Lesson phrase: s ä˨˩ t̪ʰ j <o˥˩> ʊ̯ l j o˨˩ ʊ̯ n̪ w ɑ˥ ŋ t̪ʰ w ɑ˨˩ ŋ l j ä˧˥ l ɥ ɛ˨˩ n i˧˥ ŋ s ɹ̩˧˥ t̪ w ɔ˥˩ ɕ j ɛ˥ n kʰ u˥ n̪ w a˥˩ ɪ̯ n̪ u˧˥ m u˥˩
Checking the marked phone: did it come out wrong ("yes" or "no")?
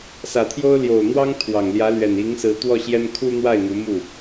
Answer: yes